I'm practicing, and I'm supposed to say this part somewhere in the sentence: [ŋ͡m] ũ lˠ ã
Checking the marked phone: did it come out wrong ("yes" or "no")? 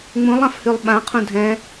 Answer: no